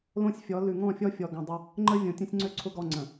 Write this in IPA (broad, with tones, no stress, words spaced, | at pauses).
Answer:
lõ˦sʲfʲɔ˨˦ lʉ˨ŋɔ̃˦˨fʲɔ˦ fʲɔ˨ɡɔ̃˨dˤə˦ | ŋ͡ǃə˦vʲõ˨tʲə̃˦sʲŋ͡ǀø˦ ǀʰʊ˦ɡɔ˦˨ ŋ͡ǀə̃˨